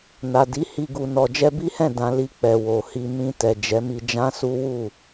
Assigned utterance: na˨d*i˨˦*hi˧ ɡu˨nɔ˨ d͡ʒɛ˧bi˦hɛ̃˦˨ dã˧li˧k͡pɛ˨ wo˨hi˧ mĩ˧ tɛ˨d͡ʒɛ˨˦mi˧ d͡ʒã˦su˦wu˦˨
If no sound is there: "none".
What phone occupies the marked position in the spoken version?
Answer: i˨˦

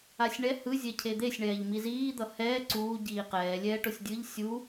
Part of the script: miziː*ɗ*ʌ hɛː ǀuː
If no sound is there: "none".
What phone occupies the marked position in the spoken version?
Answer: d̪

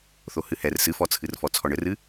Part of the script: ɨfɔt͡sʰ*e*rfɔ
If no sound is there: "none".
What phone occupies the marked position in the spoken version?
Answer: ɨ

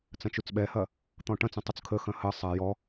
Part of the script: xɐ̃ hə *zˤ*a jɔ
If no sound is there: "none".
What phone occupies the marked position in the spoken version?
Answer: sˤ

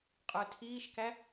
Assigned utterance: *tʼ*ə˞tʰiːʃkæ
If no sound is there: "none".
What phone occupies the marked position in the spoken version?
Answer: qʼ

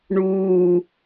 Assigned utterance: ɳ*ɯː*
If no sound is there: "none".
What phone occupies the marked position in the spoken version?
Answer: uː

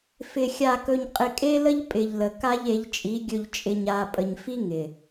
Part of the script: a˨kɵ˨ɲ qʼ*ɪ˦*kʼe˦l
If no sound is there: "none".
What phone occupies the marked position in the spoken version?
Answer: ɪ˨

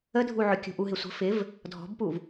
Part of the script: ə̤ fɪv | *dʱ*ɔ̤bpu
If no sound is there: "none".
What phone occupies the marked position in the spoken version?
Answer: dʱ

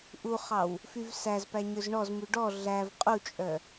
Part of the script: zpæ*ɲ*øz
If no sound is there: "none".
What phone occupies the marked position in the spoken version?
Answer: ɲ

